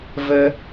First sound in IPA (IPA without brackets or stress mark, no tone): v